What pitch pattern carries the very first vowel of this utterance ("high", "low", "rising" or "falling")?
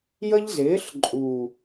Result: high